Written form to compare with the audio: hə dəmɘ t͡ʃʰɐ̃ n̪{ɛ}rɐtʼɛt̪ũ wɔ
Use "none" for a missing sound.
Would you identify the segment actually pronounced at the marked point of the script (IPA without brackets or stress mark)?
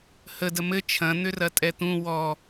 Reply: ʏ